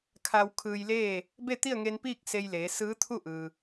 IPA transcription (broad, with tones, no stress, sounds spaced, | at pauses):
kʰ a˧ w kʰ ɯː˧ j l eː˥˨ | b e˥˨ t̪ i˥˨ ə̯ ŋ e˧ n p iː˥˨ k̚ s e˧ j l eː˩˧ s ɯː˧˥ t̪ʰ u˥˨ ʔ ɯː˩